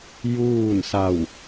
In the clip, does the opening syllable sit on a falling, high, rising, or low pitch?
falling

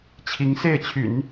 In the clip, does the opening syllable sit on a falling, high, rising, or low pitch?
rising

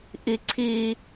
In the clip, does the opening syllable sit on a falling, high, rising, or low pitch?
high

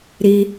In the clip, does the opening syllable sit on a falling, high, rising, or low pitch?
low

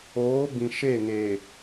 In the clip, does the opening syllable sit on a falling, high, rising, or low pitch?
rising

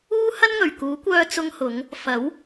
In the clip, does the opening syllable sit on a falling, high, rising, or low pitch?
high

